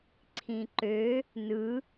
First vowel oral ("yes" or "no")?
no